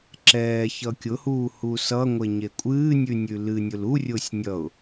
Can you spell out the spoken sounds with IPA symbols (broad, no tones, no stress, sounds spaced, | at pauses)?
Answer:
ǁ ɛː ç ʌ kʲ ʊ h uː h u s ʌ ŋʷ e ɲ e kʷʼ ɨː nʲ ʉ nʲ ʉ l ɨ nʲ ʊ l u rʲ ʊː sʲ nʲ ʌ ʊ̯